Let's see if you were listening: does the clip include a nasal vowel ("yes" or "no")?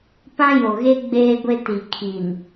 yes